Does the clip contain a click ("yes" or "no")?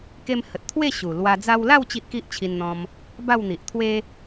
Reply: no